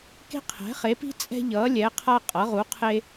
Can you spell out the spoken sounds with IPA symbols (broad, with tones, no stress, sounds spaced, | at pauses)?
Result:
k e̤˥ qʰ ɛ̤˨˥ χ e˨˥ p i̤˥ t͡sʼ ɛ̤˥ ʎ ʌː˨˥ lʲ ɛ˨˥ qʰ a˥ qʼ ʌ˨˥ ʁ u˨˥ qʰ e˥